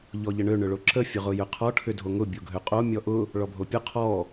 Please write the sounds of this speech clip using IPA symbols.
ʎ ɔ ʎ ə ɳ ø ɳ ʏ ɭ o ǁ ə fʲ ʊ ʁ ʊ j ʏ qʰ ɔ ʈʰ ʏ dʱ o ŋ ʊ bʲ o ɡʱ ø qʼ o mʲ ɔ ʔ ʊ | ɭ ɔ bʱ o pʲ ʊ qʰ ɔ

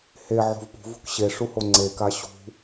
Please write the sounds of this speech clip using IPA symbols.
h e ʕ o̤ v p ṳ v ṳ k ɕ e ʂ u h o ŋ͡ǀ e k a ɕ ṳ

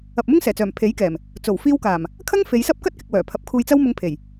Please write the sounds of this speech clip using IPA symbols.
ɐ˨ p̚ m ʊ˥ ŋ s ɛː˨˩ t͡s œː˨˩ m pʰ e˨˥ j k ɛː˨˩ m | t͡s o˨˩ w f iː˧ w k aː˨˩ m | kʰ ɐ˥ ŋ f e˨˧ j s ɐ˥ p̚ k ɐ˥ t̚ k ɪ˨ k̚ w œː˨˩ pʰ ɐ˨˥ p̚ kʰ uː˧ j t͡s ɐ˥ w m ʊ˧ ŋ pʰ e˨˩ j

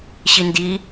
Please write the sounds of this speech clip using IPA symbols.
ɕ i n d i

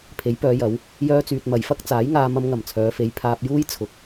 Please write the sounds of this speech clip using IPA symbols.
pʰ e˨˥ j p œː˨˧ j ɐ˨˧ w | j œː˧ t͡s yː˨ t̚ m ɐ˨˩ j f ɐ˥ k̚ t͡s aː˨˥ j ŋ aː˧ m ɐ˧ m ŋ ɐ˨˩ m t͡sʰ œː˨˧ f e˨˧ j pʰ aː˧ p̚ j uː˥ j t͡sʰ ʊ˨ k̚

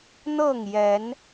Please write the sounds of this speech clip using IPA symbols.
n̪ ɤ˥˨ ŋ j ɛ˨˦ n

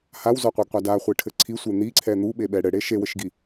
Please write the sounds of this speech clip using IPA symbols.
h a w z ɔ qʷ e ɡ qʷ a d a χʷ i ʈʰ ɘ ǀʰ i sʷ e n̪ i ǀʰ ɛ n̪ u ɓ e ɓ ɛ ɽ ɘ ɽ e ʃ e w ɘ ʃ ɡ i

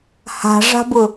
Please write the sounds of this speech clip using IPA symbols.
h a̤ ʐ a̤ b ʊ

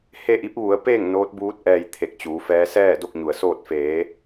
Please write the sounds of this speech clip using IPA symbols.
h e˥˨ ʔ i˧˥ p̚ ʋ u˩˧ ə̯ p eː˥˨ ŋ n oː˧˥ t̚ b uː˧˥ t̚ ʔ ɛː˧ j t̪ʰ e˧˩ k̚ t͡ɕ uː˩˧ f ɛː˧˥ s ɛː˥˨ d o˥˨ k̚ ɲ u˩ ə̯ s oː˥˨ t̚ f eː˩˧

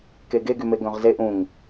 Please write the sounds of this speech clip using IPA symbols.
k e ɡ e ɡ y m e ɡ œ̃ ʁ z e ʔ ũ ŋ

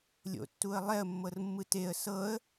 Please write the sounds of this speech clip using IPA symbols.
lʲ o̰ tː u ə̯ lˠ ɛ ə̯ mː ɤ r mː ɯ t e ə̯ s ɤ ə̯

